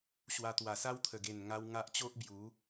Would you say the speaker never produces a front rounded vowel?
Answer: yes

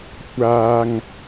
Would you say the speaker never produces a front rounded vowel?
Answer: yes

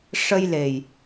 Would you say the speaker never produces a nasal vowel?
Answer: yes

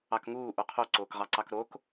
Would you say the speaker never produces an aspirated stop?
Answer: no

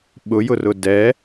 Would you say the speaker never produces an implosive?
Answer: no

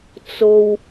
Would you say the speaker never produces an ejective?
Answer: yes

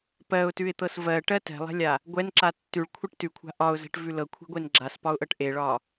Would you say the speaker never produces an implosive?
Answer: yes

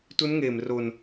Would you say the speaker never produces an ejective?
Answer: yes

